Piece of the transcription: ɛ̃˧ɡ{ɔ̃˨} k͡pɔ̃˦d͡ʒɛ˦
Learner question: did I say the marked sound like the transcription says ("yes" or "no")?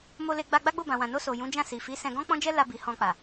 no